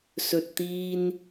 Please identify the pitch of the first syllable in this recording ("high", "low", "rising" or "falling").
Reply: low